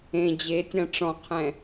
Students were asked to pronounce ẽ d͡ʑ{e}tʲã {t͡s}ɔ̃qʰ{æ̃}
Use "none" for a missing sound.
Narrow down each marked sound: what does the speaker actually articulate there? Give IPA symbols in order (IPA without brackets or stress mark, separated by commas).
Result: e, ʈ͡ʂ, ɛ̃